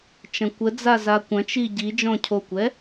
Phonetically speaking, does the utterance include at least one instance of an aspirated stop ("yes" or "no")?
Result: yes